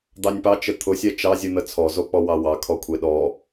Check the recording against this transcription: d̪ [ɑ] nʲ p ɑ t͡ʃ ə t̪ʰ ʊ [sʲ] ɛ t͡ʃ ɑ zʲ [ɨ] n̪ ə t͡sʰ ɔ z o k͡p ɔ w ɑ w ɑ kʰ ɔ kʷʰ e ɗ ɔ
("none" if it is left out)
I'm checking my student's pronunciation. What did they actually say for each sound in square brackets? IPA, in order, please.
ɑ, sʲ, ɨ

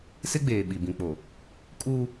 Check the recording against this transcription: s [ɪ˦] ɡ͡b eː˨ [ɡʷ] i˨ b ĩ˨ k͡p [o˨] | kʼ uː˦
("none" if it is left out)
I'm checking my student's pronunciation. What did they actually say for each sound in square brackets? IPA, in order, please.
ɪ˦, ɓ, o˨

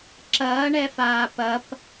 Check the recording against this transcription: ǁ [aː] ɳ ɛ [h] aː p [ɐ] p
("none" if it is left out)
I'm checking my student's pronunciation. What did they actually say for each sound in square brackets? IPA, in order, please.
ɐː, f, ɐ

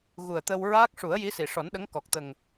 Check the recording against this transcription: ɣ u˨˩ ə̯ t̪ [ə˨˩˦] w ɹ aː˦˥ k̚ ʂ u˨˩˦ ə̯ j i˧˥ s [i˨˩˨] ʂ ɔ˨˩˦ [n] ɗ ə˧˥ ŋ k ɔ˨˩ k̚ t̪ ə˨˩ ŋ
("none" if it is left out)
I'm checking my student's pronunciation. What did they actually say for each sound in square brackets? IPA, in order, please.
ə˧, i˨˩˨, n

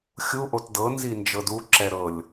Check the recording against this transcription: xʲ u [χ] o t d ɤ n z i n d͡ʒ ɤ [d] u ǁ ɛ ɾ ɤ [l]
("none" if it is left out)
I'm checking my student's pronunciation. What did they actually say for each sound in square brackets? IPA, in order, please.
ʔ, d, lʲ

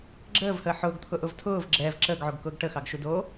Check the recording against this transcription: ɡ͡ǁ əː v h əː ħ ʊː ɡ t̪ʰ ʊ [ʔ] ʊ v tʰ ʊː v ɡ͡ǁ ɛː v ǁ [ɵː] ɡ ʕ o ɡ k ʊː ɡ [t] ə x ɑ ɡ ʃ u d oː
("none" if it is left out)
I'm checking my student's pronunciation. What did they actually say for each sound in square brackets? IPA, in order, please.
ʔ, əː, ʈ

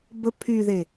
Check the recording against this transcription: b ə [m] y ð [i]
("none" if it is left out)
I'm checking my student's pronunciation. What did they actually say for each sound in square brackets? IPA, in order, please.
pʰ, e

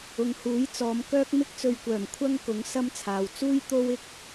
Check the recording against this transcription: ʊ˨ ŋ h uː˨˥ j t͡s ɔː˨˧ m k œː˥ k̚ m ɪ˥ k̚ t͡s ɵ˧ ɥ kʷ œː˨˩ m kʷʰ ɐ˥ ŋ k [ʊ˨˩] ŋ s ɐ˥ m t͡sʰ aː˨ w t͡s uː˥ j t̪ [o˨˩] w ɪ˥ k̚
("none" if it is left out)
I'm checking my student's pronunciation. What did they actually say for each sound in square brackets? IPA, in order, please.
ʊ˨˥, o˥

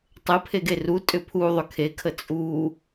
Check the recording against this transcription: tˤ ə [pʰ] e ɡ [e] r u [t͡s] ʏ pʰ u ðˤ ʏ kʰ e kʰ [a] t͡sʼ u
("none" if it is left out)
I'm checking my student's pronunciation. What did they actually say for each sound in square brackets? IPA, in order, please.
pʰ, e, tʼ, ə

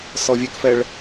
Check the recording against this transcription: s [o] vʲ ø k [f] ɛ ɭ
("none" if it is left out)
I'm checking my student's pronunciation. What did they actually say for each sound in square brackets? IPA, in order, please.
ɔ, f

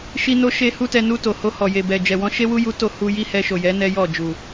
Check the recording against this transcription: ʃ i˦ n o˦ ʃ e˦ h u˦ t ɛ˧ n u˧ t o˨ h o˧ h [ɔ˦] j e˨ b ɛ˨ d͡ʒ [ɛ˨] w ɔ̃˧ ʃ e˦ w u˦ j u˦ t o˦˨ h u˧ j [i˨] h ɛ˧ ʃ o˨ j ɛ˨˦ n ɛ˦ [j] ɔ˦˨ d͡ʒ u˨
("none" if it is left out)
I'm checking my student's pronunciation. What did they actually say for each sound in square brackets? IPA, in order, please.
ɔ˨, ɛ˨, i˦, j

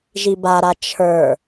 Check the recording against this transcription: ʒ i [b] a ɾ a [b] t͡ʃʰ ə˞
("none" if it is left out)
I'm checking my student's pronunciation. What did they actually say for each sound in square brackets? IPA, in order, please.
b, none

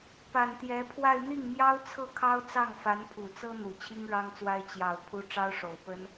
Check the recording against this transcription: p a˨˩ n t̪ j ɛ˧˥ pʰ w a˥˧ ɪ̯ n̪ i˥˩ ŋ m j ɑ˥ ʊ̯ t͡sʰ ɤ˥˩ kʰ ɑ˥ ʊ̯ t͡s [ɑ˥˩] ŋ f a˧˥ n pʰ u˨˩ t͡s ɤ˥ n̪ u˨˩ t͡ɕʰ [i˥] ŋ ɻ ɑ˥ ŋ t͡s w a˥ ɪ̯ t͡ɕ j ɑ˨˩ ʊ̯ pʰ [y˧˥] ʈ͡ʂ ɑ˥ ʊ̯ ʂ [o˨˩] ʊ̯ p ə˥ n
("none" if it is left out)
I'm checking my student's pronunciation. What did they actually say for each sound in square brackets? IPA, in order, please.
ɑ˥˩, i˥, u˧˥, o˨˩

